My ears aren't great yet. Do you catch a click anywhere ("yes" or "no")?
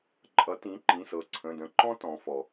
yes